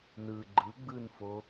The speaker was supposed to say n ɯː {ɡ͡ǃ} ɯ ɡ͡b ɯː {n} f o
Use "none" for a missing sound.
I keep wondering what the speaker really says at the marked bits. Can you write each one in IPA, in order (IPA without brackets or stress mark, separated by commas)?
ɡ͡ǃ, n